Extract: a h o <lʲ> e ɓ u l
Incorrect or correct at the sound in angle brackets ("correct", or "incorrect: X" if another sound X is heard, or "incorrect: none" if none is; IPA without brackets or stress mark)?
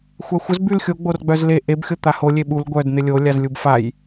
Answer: correct